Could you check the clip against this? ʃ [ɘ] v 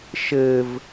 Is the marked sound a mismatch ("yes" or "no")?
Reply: no